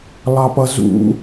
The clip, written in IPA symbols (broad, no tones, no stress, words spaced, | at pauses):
lˠɑpʌzṵ